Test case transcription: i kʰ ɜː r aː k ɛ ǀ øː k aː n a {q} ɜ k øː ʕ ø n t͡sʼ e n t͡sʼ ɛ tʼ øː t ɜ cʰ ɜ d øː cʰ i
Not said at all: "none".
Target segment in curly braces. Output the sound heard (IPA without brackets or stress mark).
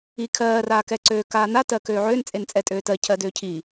t